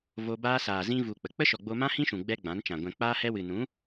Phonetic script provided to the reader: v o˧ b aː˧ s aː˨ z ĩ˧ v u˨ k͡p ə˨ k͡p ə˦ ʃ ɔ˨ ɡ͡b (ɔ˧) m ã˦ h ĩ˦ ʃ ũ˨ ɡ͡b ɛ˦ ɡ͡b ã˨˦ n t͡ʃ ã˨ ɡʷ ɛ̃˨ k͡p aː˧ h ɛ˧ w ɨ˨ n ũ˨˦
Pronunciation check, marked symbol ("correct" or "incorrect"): incorrect